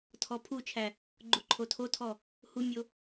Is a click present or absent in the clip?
present